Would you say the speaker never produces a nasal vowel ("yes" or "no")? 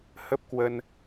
yes